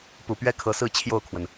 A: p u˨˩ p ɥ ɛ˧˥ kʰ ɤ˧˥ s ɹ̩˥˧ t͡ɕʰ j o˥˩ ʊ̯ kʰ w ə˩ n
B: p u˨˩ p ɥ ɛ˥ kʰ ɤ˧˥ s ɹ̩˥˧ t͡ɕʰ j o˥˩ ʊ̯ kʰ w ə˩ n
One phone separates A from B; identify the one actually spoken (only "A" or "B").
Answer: B